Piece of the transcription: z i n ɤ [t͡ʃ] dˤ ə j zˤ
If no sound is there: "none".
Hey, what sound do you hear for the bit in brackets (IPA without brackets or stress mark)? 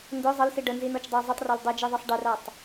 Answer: t͡ʃ